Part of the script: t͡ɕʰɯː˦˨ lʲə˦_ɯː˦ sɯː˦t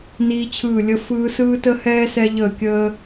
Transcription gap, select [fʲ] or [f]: f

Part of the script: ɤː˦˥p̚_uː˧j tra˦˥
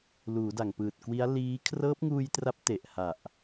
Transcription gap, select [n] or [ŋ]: ŋ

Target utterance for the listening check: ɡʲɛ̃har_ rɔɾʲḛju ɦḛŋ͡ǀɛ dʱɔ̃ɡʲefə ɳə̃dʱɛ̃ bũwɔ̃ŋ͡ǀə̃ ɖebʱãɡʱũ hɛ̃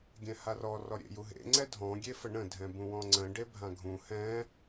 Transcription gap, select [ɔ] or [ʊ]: ɔ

